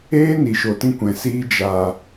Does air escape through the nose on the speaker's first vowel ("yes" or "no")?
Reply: no